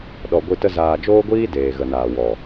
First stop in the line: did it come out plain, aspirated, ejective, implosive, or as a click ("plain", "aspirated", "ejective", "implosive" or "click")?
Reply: implosive